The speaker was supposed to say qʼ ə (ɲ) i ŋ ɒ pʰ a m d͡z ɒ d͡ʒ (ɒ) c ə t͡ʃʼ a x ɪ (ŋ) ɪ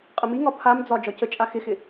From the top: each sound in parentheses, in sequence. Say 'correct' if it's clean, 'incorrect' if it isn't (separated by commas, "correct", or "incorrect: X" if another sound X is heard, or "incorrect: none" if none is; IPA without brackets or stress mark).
incorrect: m, correct, incorrect: x